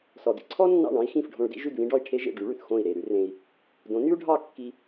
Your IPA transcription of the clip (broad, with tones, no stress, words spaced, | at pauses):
sɔ˩dḭ˧ǀʰɔ˥ nːɑ̰˥˩ɳɑ̃˥i̯ xĩ˥˩fɖʱõ˧ɭdḭ˥ ʒʉ˥˩dβĩ˥ɖɔ˥˩i̯ ʈʰe˥ʒḛ˥˩ ɖy˩˥ɭʉ˩θ xõ˥˩i̯ ɾe˥˩ ɾʉ˥rẽ˧i̯ | dõ˩˥ny˥u̯ɖʱɑ˥˩ kːi˧